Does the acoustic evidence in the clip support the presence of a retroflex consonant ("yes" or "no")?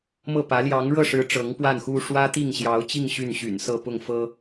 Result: yes